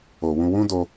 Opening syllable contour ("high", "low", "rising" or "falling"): low